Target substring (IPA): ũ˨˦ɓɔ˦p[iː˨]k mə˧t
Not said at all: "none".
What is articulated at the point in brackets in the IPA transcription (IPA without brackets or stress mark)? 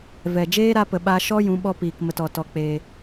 iː˨